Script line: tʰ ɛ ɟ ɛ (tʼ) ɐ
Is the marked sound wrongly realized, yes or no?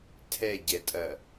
no